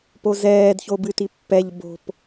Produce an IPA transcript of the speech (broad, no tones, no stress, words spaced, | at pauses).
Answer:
pozɛːdço bɨtipːɛʎ bo̤p